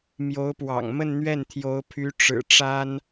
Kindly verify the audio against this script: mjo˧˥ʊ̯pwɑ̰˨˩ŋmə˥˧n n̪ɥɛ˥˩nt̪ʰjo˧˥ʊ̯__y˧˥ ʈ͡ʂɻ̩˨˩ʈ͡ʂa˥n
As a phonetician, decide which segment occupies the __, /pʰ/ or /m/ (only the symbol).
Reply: pʰ